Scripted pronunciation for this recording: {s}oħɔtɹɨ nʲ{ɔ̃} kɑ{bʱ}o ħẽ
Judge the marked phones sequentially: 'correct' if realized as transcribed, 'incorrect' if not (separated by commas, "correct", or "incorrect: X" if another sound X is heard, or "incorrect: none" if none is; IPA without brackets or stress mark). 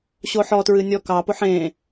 incorrect: ɕ, incorrect: ɔ, incorrect: p